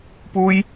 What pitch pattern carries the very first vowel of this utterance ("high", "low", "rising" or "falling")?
high